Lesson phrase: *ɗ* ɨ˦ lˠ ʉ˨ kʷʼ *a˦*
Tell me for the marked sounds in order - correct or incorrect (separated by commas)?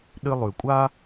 correct, correct